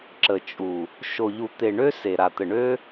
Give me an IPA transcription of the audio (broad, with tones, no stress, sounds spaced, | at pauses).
ǁ ə˨ t͡ʃʼ u˨ | ʃ o˨ ʎ u˨ t̪ e˨ ɳ ø˦ s e˨ ɾ a˨ t̪ ə˨ ɳ ø˦